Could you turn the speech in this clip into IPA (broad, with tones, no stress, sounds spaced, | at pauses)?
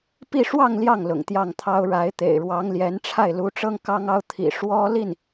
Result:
p i˥˧ ʂ w ɑ˥˧ ŋ l j ɑ˥˩ ŋ l ʊ̰˨˩ ŋ t̪ j ɑ˥˩ ŋ t̪ʰ ɑ˥ ʊ̯ ɻ a˧˥ ɪ̯ t̪ ḛ˨˩ ɪ̯ ɻ w ɑ˧˥ ŋ l j ɛ˧˥ n ʈ͡ʂʰ a˥˩ ɪ̯ l u˧˥ ʈ͡ʂ ɤ˥ ŋ k ɑ˥ ŋ ɑ˥ ʊ̯ t̪ʰ ḭ˨˩ ʂ w ɔ˥ l i˥˩ n